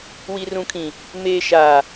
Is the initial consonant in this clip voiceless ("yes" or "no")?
no